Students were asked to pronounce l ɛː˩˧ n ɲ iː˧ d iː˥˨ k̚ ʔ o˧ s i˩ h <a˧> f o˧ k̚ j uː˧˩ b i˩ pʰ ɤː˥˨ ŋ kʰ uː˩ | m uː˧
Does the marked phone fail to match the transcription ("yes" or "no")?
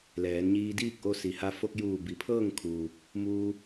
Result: no